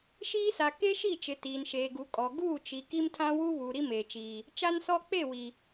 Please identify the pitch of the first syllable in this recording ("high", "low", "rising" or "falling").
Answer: high